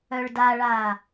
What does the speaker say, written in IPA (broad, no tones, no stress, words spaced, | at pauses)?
œɭdaɭaː